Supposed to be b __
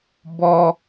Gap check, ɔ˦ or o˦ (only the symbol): ɔ˦